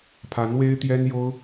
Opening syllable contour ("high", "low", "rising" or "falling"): rising